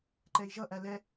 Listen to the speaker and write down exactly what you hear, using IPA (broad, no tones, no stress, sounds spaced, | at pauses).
ǃ ɛ i̯ ʒ ʌ ʔ æ l ɛ